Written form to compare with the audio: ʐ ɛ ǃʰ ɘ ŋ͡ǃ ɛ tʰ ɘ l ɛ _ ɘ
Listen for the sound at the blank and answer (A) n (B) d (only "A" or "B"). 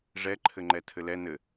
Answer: A